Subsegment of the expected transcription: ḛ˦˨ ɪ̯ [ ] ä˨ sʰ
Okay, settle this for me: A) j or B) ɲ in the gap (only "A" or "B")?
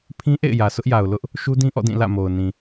A